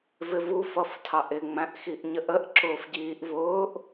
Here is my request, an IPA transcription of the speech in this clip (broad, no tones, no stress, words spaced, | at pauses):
vɪvu fʌftʰɑʔɪ ŋ͡mæ̃ʔxiʔɲəʔəʔ ǁʊːfɟiːʔvʊːʔ